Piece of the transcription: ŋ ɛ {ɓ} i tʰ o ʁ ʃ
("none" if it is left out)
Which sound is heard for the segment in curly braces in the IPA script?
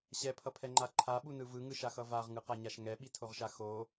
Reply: ɓ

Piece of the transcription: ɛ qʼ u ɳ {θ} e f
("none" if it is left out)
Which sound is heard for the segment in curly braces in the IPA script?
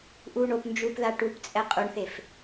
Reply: θ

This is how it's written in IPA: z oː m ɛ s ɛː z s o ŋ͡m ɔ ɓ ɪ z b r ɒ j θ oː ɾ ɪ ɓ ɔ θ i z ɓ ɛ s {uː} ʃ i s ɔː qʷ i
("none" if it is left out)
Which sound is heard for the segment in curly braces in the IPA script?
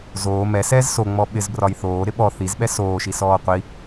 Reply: oː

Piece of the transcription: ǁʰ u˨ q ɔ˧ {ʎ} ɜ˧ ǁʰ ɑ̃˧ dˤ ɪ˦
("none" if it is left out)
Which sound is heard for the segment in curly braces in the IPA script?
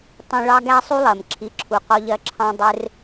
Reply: ʎ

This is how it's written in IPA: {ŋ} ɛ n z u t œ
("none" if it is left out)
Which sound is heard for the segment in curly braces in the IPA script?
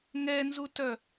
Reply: ŋ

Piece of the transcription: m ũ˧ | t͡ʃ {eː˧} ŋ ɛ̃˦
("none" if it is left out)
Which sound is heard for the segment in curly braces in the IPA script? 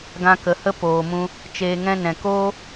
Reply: eː˧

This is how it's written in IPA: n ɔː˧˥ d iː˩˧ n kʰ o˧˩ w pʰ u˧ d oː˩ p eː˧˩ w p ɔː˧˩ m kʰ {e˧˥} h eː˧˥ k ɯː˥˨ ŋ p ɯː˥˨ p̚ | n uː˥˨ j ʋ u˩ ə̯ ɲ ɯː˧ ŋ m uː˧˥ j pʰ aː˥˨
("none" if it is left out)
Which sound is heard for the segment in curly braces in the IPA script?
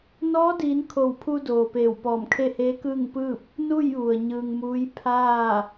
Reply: e˥˨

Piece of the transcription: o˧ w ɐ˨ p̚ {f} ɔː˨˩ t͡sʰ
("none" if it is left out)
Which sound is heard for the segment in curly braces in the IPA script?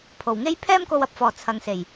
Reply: f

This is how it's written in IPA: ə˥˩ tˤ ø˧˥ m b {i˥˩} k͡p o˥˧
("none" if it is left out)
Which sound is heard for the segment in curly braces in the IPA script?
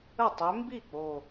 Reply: i˥˩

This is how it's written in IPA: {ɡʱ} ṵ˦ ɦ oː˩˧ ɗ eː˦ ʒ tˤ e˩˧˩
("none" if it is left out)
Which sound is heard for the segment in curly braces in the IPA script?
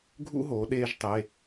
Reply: ɡʱ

